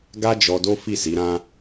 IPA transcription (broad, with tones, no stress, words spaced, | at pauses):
ɡa˦ d͡ʒɔ˧do˦ fi˦˨si˨˦ɾã˦